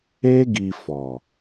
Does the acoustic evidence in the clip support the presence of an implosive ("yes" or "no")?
no